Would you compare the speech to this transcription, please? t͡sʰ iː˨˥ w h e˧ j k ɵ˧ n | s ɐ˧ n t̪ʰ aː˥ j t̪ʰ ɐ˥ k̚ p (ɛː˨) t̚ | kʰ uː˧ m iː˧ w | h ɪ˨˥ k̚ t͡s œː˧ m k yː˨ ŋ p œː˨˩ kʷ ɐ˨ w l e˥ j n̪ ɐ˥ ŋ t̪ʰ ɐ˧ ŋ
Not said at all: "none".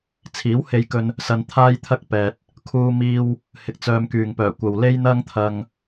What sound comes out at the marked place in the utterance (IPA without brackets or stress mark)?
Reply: ɛː˨